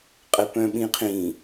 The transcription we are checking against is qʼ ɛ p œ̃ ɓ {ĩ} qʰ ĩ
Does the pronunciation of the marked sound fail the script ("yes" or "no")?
no